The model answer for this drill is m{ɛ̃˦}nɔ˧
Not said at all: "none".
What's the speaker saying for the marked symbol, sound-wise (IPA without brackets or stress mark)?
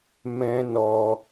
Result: ɛ̃˦